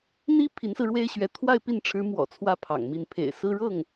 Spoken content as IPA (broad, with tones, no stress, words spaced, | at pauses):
n̪i˥ pʰi˧˥nsɹ̩˧ɻwe˥ɪ̯ɕɥɛ˧˥ t̪ʰwa˥˧ɪ̯pi˥˩nʈ͡ʂʰɻ̩˧˥ mwɔ̰˨˩t͡sʰwä˥˩ pʰɑ̰˨˩ŋmi˥˩n pʰḛ˨˩ɪ̯ sɹ̩˥ ɻɤ˥˩ŋ